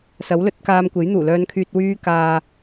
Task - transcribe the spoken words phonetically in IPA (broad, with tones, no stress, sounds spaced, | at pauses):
s ɐ˨˥ w l ɵ˨˥ t̚ k aː˧ m kʷ e˨˥ j n̪ uː˨˩ l œː˧ n kʰ yː˧ t̚ w yː˥ k aː˧